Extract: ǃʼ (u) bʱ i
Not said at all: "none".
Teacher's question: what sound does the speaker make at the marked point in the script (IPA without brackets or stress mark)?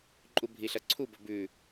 u